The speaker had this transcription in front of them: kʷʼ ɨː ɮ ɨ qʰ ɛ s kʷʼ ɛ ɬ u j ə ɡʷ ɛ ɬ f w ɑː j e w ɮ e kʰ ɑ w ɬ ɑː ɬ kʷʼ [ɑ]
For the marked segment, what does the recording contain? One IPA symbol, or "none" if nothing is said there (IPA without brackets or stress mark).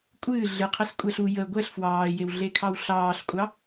ɑ